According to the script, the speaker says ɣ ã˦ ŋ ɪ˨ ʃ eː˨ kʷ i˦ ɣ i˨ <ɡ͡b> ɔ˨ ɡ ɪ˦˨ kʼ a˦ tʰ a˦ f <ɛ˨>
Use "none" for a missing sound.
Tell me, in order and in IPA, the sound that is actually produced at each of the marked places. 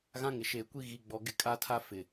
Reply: ɡ͡b, ɪ˨

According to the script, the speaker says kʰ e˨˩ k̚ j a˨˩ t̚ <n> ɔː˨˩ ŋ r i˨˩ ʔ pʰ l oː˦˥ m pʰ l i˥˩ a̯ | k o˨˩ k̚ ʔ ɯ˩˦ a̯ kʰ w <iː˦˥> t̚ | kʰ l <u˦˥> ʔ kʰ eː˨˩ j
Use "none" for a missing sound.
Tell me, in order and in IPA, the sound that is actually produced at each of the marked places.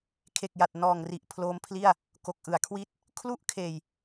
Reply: n, iː˦˥, u˥˩

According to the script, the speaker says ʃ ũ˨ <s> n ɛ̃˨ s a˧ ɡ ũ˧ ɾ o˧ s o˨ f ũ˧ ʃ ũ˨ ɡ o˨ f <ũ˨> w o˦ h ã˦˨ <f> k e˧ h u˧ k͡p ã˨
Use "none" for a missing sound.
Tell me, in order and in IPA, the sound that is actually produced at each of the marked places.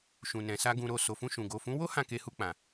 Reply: none, ũ˨˦, none

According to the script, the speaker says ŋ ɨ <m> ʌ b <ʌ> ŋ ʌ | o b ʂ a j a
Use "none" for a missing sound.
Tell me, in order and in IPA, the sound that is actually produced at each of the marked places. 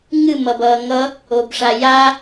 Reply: m, ʌː

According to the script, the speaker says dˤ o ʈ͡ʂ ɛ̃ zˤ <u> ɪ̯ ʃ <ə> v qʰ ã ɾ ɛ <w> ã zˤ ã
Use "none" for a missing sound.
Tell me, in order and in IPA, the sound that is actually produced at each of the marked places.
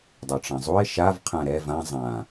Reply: u, a, v

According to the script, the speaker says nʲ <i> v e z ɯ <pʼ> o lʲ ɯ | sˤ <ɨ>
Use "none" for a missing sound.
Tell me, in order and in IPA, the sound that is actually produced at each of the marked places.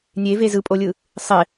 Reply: e, pʼ, ɪ

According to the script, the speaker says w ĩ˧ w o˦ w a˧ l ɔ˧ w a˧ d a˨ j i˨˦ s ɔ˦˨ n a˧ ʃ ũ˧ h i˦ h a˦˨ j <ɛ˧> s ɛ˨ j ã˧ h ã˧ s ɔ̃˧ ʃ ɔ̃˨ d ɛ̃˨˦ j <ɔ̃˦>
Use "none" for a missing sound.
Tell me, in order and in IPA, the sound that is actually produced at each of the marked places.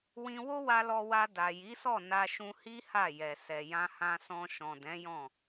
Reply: ɛ˨, ɔ̃˦˨

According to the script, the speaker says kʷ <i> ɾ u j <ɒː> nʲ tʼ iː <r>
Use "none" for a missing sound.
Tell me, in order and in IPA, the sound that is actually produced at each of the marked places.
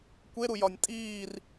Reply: e, ɒ, r

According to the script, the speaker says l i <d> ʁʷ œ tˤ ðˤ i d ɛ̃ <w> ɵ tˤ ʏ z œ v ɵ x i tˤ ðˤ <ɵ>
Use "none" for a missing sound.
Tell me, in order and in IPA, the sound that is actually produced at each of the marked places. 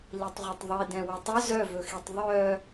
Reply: tˤ, w, œ

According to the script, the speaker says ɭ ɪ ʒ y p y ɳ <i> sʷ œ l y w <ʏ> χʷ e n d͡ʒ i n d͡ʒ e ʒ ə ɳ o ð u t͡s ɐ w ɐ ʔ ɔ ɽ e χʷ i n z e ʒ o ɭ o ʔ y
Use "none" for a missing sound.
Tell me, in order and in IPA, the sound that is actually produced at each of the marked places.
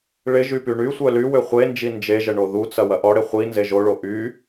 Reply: y, ʏ

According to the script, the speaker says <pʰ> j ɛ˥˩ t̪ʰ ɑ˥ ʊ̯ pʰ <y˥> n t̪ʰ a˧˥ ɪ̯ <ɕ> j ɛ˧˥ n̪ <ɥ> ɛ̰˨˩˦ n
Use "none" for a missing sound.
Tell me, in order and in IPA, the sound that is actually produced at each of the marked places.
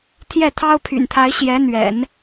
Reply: t̪ʰ, y̰˨˩, ɕ, ɥ

